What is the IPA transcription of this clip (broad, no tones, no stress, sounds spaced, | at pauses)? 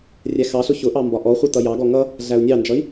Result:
rʲ æ x ɑ ɬ ʊ ç ʊ ʔ ɑ m b ɒ ʔ ɔ χʷ i t ʌ j ɑ ɡ ɔ ŋ ʌ | ɮ æ u̯ nʲ ɑ n d͡ʒ ʌ i̯